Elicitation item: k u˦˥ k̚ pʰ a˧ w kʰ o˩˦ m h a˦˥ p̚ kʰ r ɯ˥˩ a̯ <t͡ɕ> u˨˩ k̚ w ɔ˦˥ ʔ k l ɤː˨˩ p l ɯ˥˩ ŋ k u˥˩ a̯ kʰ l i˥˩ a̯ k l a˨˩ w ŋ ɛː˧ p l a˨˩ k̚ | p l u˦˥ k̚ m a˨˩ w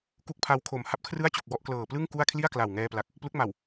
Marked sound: correct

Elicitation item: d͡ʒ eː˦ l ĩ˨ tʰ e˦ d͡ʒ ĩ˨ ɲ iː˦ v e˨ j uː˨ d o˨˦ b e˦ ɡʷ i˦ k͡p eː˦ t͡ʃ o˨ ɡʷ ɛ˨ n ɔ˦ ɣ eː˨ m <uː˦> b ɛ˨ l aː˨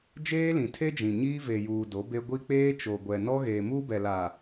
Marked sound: correct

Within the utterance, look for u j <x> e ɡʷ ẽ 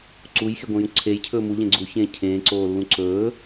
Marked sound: correct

